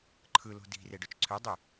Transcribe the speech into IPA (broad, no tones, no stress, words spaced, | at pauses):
ǃʰɯlo̤ di̤re ɖøt͡ʃǀʰødˤy